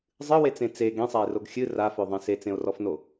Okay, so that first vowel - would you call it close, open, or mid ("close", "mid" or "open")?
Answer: close